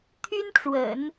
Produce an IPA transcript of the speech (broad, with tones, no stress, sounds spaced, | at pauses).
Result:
t̪ʰ y˥ n ʈ͡ʂ w ə̰˨˩˦ n